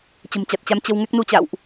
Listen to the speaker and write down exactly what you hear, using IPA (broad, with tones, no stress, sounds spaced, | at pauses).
t͡ɕ ə̤˨˩ m t͡ɕ a˨˩ t̚ t͡ɕ a˨˦ m t͡ɕ ə˧ w ŋ ɛ˦˥ k̚ n u˧ t͡ɕ a̰˧˨ w ʔ